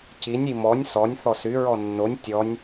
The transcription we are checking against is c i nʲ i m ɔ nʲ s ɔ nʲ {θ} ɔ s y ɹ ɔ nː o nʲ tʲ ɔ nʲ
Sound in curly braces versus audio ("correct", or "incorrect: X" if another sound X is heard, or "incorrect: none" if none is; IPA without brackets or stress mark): correct